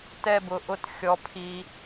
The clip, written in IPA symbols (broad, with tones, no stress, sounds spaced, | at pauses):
t ɛ˥˧ b ʊ˧ ʔ ʊ˥˧ t xʲ ɔ˧ pʰ i˧